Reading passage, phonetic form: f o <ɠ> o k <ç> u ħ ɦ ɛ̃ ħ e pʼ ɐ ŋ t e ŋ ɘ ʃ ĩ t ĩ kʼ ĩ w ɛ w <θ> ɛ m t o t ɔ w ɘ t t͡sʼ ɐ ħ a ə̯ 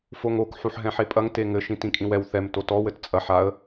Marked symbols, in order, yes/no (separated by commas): no, no, yes